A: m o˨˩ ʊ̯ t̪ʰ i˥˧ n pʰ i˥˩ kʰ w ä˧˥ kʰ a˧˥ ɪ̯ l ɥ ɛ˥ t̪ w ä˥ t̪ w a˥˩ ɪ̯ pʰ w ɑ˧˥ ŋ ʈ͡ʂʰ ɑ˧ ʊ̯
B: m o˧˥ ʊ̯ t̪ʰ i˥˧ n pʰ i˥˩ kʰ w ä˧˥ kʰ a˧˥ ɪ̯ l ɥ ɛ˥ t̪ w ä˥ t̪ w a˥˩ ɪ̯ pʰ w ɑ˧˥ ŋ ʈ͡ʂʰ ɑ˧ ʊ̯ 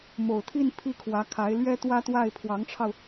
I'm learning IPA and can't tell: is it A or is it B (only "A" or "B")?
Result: A